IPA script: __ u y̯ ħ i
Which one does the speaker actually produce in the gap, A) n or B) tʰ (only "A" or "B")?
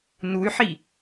A